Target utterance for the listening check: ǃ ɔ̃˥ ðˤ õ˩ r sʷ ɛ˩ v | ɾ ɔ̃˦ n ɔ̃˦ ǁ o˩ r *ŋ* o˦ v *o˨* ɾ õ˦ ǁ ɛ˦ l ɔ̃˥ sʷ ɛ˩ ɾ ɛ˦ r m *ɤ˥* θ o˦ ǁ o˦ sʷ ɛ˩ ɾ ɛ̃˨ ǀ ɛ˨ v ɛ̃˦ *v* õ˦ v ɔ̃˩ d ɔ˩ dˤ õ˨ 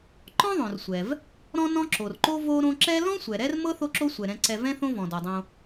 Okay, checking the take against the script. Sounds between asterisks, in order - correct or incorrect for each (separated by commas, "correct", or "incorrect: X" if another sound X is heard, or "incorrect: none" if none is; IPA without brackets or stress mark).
incorrect: ǃ, incorrect: o˦, correct, incorrect: θ